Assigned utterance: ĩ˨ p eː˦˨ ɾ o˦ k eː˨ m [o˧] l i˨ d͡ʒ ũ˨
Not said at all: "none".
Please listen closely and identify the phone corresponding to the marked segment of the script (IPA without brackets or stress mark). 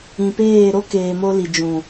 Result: o˧